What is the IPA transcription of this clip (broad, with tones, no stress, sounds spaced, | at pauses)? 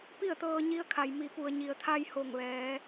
p i˥˨ ə̯ t̪ ɤː˧ ɲ i˧ ə̯ kʰ a˩ j m i˩ p u˩ ə̯ ɲ i˩ ə̯ t̪ʰ a˧ j h o˧˩ ŋ ʋ ɛː˩˧